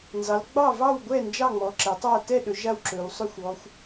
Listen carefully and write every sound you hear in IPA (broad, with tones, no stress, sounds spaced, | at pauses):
n z ɑ˩˧ l ɡ͡b ɑ˥˨ v ɑ˥˨ w ɡʷ ɛ˥˨ n d͡ʒ ɑ˥˨ ŋ͡m ɔ˩˧ ǁ ɛ˩˧ tˤ a˥˨ t ɛ˥˨ ɗ ɵ˩˧ ʒ a˥˨ w ǁ ɵ˩˧ w sˤ ɵ˥˨ xʷ ɔ˩˧ xʷ